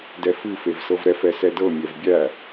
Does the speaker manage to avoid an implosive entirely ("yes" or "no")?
yes